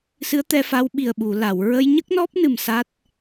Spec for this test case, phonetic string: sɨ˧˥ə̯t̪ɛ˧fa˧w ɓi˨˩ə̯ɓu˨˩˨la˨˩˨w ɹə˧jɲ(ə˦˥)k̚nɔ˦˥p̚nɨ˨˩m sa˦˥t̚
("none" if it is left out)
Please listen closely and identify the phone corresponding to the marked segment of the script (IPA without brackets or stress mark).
ə˦˥